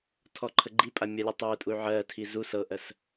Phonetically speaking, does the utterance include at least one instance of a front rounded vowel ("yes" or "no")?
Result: yes